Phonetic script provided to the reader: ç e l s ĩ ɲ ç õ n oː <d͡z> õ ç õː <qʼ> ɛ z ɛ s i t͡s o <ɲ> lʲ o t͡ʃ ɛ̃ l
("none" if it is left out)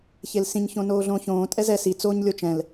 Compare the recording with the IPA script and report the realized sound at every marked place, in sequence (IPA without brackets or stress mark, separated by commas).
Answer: ɮ, tʼ, ɲ